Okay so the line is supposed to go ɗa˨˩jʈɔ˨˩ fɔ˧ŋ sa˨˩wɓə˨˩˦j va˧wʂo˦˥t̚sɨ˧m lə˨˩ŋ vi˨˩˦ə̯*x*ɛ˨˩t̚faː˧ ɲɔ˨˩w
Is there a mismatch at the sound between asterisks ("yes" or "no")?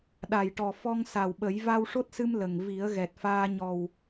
yes